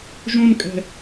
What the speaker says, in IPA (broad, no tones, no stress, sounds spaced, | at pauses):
ʒ ũ n kʼ ɛ̤